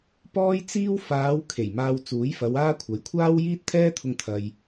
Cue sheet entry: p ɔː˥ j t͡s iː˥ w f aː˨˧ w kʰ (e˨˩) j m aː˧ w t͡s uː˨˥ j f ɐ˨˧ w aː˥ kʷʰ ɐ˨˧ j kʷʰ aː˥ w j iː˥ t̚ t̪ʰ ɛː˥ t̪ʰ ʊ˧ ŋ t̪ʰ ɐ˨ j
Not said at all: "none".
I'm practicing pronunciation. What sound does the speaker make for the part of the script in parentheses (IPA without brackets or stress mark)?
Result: e˨˩